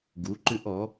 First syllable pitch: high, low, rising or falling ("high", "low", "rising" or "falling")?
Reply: rising